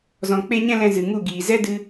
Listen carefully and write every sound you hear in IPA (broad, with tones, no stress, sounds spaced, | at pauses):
z ɔ̃˧ k͡p e˦ ɲ ɛ̃˦ l ɛ̃˧ z ɨ˨ ŋ u˦˨ ɡ iː˨ z ɛ˦ d ɨ˧